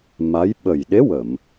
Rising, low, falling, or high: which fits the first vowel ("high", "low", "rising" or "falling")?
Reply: rising